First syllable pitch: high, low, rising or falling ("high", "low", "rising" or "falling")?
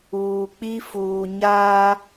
low